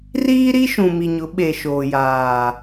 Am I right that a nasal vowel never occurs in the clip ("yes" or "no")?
no